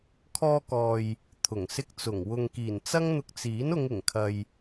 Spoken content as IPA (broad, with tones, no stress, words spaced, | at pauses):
kʰɔː˧kɔː˨j | t̪ʰʊ˨˩ŋsɪ˧k̚t͡sʊ˨˩ŋ wʊ˨ŋkiː˨˩n t͡sɐ˥ŋn̪ʊ˧k̚t͡siː˨˥n ʊ˨˧ŋɪ˨˩ŋkʰɐ˨j